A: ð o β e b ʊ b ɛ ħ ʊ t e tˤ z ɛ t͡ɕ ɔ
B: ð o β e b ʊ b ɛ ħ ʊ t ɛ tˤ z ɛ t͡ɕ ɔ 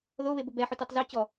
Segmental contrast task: A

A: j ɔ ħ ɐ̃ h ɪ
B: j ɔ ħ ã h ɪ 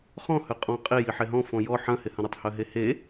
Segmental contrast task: A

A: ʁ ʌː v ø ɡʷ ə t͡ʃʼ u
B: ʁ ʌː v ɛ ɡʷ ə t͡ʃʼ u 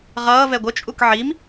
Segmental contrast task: B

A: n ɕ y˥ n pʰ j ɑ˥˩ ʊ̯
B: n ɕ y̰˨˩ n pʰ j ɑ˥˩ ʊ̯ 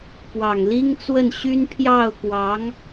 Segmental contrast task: A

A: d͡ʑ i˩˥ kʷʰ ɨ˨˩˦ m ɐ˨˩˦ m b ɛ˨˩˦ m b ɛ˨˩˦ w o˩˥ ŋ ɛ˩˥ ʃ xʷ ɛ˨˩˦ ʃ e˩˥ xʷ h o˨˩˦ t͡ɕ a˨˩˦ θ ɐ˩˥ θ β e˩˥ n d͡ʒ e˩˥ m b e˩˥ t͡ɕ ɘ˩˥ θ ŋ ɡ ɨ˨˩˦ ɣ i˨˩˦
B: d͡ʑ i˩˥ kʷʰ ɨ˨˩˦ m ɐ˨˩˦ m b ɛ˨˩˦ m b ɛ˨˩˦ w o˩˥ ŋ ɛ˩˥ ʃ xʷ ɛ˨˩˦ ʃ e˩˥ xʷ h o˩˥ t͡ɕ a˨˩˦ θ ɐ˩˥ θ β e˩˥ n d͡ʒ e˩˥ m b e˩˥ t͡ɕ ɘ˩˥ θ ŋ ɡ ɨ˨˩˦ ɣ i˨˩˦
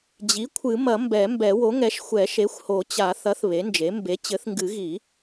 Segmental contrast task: A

